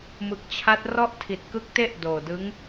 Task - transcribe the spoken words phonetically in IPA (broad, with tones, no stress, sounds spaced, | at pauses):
m ɯ˨˩ k̚ t͡ɕʰ a˦˥ t̚ r ɔ˥˩ ʔ tʰ i˨˩ t̚ k ɯ˦˥ k̚ t e˥˩ ʔ d oː˨˩ d ɯ˦˥ ŋ